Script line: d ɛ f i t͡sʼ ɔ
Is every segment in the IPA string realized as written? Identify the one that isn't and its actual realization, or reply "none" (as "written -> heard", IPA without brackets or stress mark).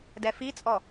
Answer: none